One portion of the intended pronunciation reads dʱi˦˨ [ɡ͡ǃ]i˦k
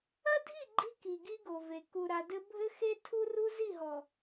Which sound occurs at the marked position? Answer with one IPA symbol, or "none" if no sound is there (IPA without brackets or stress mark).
ɡ͡ǃ